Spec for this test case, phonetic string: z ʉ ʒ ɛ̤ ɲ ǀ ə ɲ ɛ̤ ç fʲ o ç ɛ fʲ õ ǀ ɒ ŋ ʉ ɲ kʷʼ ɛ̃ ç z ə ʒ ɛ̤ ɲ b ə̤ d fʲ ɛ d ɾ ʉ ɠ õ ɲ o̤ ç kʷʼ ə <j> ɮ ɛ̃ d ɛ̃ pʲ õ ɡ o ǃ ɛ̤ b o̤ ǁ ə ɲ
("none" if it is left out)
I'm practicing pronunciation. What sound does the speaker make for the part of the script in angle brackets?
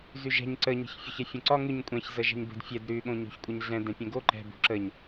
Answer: ɲ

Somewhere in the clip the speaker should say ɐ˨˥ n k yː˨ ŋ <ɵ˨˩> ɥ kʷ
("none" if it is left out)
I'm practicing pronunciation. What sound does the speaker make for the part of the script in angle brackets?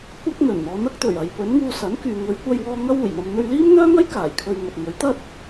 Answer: ɵ˨˧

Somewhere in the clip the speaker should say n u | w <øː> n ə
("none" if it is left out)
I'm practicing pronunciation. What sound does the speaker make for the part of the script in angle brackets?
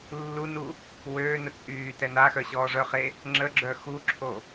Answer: øː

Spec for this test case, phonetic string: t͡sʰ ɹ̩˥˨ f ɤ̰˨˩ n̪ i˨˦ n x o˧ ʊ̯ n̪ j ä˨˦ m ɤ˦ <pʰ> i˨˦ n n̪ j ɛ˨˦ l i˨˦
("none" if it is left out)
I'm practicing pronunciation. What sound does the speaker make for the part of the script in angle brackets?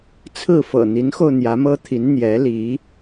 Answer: t̪ʰ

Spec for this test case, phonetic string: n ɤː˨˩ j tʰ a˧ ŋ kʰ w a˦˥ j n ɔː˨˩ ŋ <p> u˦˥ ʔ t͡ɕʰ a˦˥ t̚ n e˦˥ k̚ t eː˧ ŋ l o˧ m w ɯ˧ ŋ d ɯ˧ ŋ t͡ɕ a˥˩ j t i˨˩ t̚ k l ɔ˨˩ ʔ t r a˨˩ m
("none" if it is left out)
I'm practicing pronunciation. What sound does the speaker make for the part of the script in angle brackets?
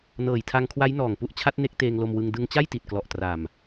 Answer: p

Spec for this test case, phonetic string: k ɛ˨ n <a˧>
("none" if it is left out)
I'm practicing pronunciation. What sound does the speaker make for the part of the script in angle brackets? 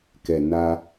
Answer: a˧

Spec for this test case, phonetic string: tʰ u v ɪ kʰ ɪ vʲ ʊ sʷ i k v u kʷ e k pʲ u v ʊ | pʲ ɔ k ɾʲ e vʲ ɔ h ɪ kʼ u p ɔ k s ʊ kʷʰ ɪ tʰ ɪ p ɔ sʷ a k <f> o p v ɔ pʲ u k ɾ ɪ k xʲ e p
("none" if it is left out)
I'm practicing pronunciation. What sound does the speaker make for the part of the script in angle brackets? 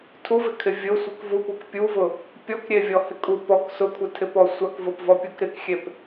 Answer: v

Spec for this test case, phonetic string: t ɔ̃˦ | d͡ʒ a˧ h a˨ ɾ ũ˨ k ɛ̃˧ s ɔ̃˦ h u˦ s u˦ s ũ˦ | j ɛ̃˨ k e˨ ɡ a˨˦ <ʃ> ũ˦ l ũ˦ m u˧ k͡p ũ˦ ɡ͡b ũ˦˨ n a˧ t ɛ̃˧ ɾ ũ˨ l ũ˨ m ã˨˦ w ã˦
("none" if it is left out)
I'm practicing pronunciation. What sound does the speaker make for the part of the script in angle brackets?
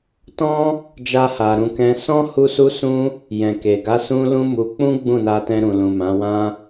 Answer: s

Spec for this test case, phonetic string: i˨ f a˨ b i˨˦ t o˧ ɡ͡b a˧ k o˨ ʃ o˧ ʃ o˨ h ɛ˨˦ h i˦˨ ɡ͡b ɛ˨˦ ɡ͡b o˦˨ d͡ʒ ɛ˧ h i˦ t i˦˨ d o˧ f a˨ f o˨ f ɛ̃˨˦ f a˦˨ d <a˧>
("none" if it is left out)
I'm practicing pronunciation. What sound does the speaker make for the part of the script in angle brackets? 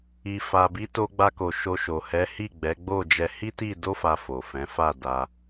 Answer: a˧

